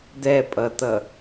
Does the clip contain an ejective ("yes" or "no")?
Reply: yes